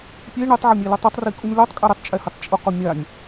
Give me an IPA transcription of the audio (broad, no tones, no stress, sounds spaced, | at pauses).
pʲ e ɳ ɪ tˤ ʕ ɛ mʲ ɛ l u tˤ o tˤ r i kʼ u nʲ l o tˤ kʼ ɛ ɾ ɪ tˤ t͡ʃʼ ɛ h ɪ tˤ t͡ʃʼ ʊ q ʊ mʲ a nʲ